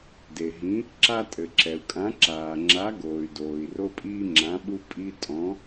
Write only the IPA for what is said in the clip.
d e˩ ɦ ĩ˨˥ | ǁ a˦ tʼ ɘ˩ ǁ ɛ˩ u̯ kʼ ã˨˥ ǁ aː˩ ŋ͡ǁ a˨˥ ɡ oː˩ y̯ d oː˩ i̯ r o˦ pʼ iː˦ ŋ͡ǁ ã˨˥ ɓ u˦ pʼ i˦ tʼ ɔ̃˨˥

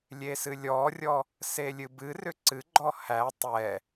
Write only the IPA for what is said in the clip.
lʲ e s ɨ lʲ ɔ rʲ ɔ | s e lʲ ɨ b ɨ r ʏ ǀ ɨ ɡ͡ǃ ɔ h æ tˤ ɛ

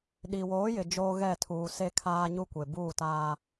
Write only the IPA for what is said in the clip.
ɗ i˨ w oː˨˦ j ɪ˨ d͡ʒ oː˦ ɣ ɛ˦˨ tʰ uː˨ s e˦ kʰ aː˦ ɲ u˦ kʷ e˨ b uː˦˨ t aː˦

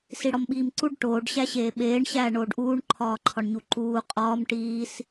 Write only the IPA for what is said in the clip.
s i ɽ ɒ m ɓ iː m ǀ u ɖ ʈ oː ɖ ɕ æ ɕ eː ɓ eː ɳ ɕ æː ɳ oː ɖ ʔ uː ɳ ǃʰ ɒː ǃʰ ɒ ɳ ɲ u ǃ uː qʼ ɒː m ʈ iː s

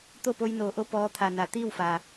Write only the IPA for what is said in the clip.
t̪ o˥˨ p o˧ j n oː˩˧ ʔ o˧ p ɔː˧˥ t̪ʰ a˧˩ n a˩˧ t̪ iː˥˨ w f aː˩

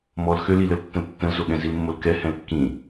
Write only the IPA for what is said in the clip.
m ɔ l x ø l i l ə l tː ə̃ l tː ə̃ l z o ɠ ɛ̃ z i l mː o l k ɛ h ɛ̃ l kː ĩ

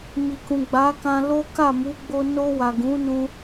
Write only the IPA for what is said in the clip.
m i˨ k ũ˨ ɡ͡b a˨˦ k ã˧ l o˦ k a˦˨ m u˨˦ ɡ͡b o˧ n o˧ w a˨ ɡ ũ˨˦ n ũ˧

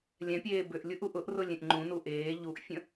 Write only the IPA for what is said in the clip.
lʲ ɛ̃ pʲ eː b ʏ ʔ lʲ u ʔ u ʔ ʊ ʔ r ʊ lʲ ẽ ʔ ŋ͡ǃ ũ n u ʔ eː ʎ u ʔ fʲ ə̃

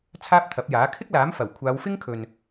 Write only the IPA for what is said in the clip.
t͡sʰ aː˥ p̚ t̪ʰ ɐ˨˥ p̚ j aː˨˥ kʰ ɪ˥ k̚ l aː˨˥ m f ɐ˨˩ w kʷʰ aː˨˧ w f ɪ˥ ŋ kʰ ɵ˨ n

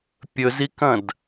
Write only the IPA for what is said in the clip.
pʲ ɵ z i k ɐ̃ d

